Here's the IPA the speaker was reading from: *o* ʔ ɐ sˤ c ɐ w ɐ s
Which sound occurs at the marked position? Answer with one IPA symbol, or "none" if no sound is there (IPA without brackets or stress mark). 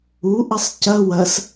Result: u